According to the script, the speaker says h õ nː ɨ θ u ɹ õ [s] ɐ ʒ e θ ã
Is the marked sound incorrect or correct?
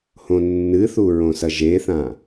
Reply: correct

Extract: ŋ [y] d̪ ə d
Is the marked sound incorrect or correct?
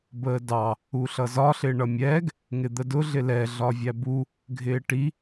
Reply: incorrect: ɪ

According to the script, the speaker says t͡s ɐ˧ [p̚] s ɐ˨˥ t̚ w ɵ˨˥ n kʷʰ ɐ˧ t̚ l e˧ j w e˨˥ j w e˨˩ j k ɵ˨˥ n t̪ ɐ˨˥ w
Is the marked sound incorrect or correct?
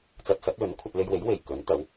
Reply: incorrect: t̚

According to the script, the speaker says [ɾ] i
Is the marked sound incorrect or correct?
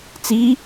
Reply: incorrect: t͡s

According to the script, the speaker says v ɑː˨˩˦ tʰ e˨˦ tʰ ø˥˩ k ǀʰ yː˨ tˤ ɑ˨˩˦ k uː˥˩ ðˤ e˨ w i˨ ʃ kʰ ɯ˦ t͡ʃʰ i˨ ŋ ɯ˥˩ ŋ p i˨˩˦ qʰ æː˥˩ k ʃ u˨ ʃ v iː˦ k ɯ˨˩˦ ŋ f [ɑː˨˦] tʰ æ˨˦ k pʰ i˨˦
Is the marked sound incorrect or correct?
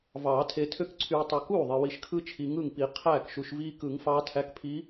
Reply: correct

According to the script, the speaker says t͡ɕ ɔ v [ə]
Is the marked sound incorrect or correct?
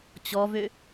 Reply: incorrect: ø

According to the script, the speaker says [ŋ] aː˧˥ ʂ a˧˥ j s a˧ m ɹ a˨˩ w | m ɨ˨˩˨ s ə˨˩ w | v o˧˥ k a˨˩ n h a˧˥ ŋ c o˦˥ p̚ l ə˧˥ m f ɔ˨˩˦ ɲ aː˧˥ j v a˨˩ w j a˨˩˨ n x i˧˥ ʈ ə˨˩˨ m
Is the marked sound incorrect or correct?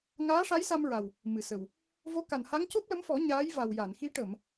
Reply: correct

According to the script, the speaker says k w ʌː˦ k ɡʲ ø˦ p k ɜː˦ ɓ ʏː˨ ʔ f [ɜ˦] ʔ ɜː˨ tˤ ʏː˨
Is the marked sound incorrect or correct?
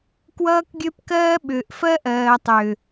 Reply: correct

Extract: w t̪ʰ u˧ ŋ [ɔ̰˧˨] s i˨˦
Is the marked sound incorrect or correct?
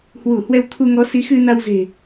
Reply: incorrect: ɔ˨˦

